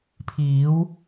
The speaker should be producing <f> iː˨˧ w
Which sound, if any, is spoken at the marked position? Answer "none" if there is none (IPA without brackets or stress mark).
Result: pʰ